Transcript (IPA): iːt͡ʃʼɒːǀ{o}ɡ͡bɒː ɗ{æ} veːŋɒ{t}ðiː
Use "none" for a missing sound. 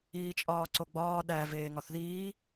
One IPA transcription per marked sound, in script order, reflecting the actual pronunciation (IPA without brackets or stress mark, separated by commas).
o, æ, θ